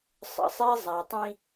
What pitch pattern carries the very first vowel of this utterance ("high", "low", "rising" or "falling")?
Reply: low